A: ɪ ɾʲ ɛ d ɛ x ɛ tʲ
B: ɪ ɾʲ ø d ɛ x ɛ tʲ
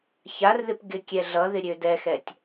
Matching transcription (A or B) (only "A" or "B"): B